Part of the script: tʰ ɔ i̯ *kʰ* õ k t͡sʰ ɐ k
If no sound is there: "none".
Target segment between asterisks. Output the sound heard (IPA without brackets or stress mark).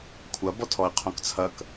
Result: qʰ